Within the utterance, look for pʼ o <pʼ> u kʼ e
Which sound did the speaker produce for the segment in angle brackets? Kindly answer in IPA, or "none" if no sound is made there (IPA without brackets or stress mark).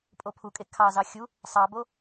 pʰ